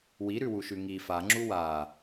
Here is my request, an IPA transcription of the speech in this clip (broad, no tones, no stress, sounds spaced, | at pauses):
w i ɾ ʉ w u ʃ ʉ ŋ i f a ŋ͡ǁ u w a